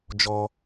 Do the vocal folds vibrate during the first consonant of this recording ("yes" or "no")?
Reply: yes